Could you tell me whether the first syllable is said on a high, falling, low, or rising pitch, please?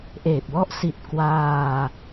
low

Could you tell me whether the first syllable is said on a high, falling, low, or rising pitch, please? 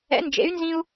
rising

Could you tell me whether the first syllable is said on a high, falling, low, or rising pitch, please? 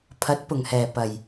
rising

